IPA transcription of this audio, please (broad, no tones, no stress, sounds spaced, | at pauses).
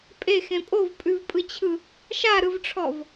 pʼ e x ẽ pʼ o v pʼ ʉ v pʼ ɯ t͡ɕʰ ɯ | ʃ a ɾ ɯ v ʈ͡ʂʰ ɔ v